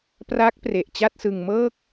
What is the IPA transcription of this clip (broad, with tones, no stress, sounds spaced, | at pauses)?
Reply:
p r a˦˥ k̚ p r e˨˩ ʔ t͡ɕ a˥˩ t̚ s ɯ˧ ŋ m ɤː˥˩ k̚